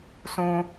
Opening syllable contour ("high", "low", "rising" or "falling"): high